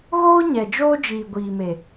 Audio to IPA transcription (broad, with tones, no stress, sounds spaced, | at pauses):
ɣ oː˦ ɲ ɛ˨ d͡ʒ oː˦ d͡ʒ iː˨ ɡʷ iː˨ m e˨